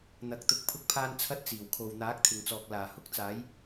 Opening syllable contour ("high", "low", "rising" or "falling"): rising